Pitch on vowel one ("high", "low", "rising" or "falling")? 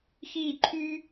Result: falling